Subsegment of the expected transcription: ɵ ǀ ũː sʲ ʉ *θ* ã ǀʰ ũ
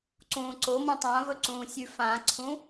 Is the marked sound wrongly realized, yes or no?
yes